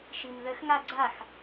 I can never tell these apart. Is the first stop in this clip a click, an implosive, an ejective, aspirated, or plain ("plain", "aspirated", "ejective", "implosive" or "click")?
click